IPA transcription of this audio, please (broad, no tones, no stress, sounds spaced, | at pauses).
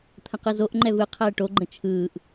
t̪ʰ ə̃ q ɯ z o ʔ ŋ͡ǃ ɛ v ɯ qʰ ɛː ʈ o ɡ͡ǃ ə̃ t͡ʃʰ ɯː ʔ